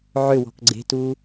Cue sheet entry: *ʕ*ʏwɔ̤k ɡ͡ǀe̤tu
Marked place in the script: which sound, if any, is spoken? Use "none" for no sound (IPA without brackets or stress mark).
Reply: ʕ